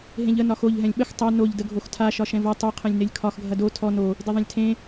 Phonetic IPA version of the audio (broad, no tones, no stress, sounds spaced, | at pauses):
ɦ ẽ ʎ ə n ɒ x o ʎ ɦ ɛ̃ lʲ ɓ ə x tˤ ɐ n o ʎ d ə ɡʱ o x tʰ a ʃ ɒ ʃ ɛ̃ v ɐ tˤ o qʰ ẽ lʲ n e lʲ kʰ ɒ x ɡʱ ɐ d o tʰ ɔ n o | d e ðˤ ẽ lʲ tʰ ẽ